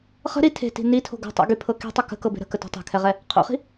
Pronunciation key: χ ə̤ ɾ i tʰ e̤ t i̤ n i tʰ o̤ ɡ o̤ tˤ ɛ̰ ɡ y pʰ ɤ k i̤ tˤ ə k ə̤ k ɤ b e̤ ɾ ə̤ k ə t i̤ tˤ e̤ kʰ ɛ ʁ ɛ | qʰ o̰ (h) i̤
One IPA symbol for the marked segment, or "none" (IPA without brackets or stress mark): χ